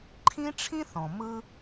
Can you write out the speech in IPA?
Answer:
ǃʰĩ˦ʈ͡ʂʰĩ˦ θɔ̃˨ mɯ˦

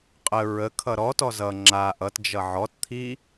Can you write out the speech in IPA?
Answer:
qʼə ɹəkʰʌ ɾɔtɔ zʌ ŋ͡ǁa ʔʌt d͡ʒʌʕɔtt̪ʰi

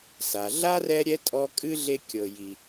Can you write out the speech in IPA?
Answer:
sa˩ ɮa˥rɛ˦ ɾʲɛ˥tʼɔ˦ kʼɨ˥ɮe˦kʲɤ˨ ji˨

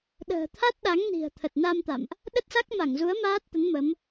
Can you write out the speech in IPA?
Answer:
ɗə̤ː˨˩t̪ʰa˦˥t̚ ɗa˨˦ŋni̤˨˩ə̯ t̪ʰə˨˩t̚na˧m t̪a̰˧˨mʔ | ɗə˦˥t̚sa˦˥k̚ma˧˩ŋzu˨˦ə̯ maː˦˥t̚t̪ə˨˦n mə˨˦m

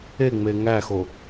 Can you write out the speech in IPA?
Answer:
eŋ͡me ŋæxo

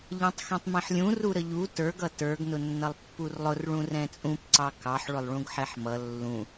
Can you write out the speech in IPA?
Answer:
ʎɛ̃tˤxɛ̃tˤmĩħlʲũ ruɾəʎu tə˞ɡ ʌtə˞ɡ nʊnːʌlˠpːurlˠʊr ɭũrɛ̃t͡sʼũp ǀɑkɑħ ɭʊlˠɭũɡħɛħmʌ lːũ

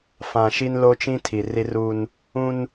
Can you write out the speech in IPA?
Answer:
fã˨ʃi˦nlo˦t͡ʃĩ˦ tʰi˨ri˦ruː˦n | ũ˦n

